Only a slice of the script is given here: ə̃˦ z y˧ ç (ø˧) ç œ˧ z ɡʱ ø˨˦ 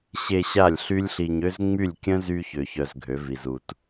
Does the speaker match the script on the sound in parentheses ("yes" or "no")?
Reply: no